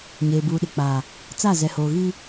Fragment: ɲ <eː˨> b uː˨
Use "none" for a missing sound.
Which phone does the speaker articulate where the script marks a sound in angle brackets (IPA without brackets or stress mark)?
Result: eː˨